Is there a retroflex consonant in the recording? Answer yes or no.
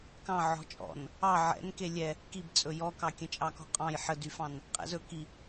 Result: no